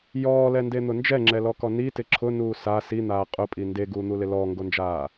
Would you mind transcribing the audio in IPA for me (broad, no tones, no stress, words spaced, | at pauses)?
jɔːlɛnden̪ʊ nd͡ʒɛŋ͡ǁɛlɔkɔ nitɪ ǁʰʊnuː sa sin̪aː qʼʊpʼi ndeɡuːn̪ulɪ lɔːŋɡond͡ʒaː